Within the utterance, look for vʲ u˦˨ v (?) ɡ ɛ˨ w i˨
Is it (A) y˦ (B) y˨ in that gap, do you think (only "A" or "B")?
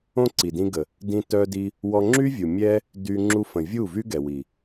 A